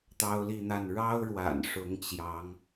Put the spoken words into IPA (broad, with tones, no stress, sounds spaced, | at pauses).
t̪ ɑ˥ ʊ̯ l i˥˧ n̪ a˥˩ n ɻ ɑ˥ ʊ̯ ɻ w a̰˨˩ n ʂ ʊ˧˥ ŋ t͡ɕ j ɑ˧˥ ŋ